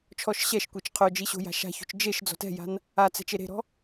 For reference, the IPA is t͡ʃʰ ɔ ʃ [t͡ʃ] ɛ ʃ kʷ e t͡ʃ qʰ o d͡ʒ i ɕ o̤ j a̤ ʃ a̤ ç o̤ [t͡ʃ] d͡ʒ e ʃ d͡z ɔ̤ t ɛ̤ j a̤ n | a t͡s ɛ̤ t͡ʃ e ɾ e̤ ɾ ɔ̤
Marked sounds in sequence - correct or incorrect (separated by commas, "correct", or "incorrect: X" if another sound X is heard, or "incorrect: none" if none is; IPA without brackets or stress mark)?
incorrect: ɕ, correct